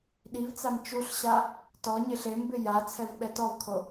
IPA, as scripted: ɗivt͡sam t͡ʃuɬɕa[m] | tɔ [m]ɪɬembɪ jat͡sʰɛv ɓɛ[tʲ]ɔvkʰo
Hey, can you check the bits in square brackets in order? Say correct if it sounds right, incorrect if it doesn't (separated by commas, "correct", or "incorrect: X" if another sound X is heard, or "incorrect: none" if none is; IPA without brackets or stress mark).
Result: incorrect: none, incorrect: ɲ, incorrect: t